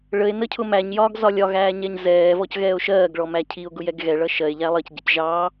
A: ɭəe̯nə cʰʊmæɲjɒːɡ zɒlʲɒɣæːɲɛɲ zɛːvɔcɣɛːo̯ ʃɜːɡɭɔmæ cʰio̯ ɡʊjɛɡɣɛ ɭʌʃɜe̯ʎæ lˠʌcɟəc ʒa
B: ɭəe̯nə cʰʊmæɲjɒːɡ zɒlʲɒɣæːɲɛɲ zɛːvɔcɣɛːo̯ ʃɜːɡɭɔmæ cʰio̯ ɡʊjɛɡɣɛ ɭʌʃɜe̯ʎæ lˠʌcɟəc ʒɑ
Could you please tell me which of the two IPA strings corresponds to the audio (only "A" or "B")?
B